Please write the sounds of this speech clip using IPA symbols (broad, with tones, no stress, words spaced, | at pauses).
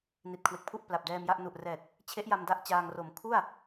ni˨˩t̚kʰwe˨˩k̚pʰu˥˩ʔ pla˨˩p̚dɛː˧mja˥˩ʔ nu˨˩ʔrɛː˨˩t̚ | t͡ɕʰe˦˥ʔ ja˧mda˦˥ʔ t͡ɕaː˧ŋro˨˩m kʰu˥˩a̯